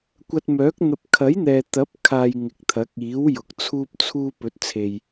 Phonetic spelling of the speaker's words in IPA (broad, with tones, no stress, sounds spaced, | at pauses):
kʷ ɐ˧ t̚ m œː˨˥ k̚ n̪ ɐ˧ p̚ kʰ ɐ˨˥ j n̪ ɛː˨ t̪ ɐ˨˥ p̚ kʰ aː˨ j ŋ ɪ˨ k̚ t̪ʰ ɐ˨˥ k̚ iː˨˥ w j ʊ˨˥ k̚ t͡sʰ uː˥ p̚ t͡sʰ uː˥ p ɵ˨˥ t̚ t͡sʰ e˨ j